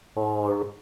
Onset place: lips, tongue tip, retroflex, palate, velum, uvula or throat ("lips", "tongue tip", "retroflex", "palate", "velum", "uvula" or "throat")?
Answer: retroflex